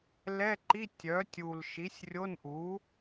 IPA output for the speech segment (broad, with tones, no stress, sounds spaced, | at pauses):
l ɛ˧˥˧ ǃ i˧˥˧ tʲ œ˩˥ tʲ u˨˩ l ʃ i˩˥ sʲ rʲ o˧˥˧ n ʔ u˩˥